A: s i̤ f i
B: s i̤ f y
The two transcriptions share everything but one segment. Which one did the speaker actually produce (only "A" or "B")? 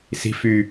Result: B